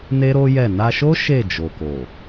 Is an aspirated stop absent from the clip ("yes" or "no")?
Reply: yes